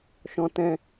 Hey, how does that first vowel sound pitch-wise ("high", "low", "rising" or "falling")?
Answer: high